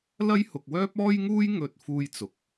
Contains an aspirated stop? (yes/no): no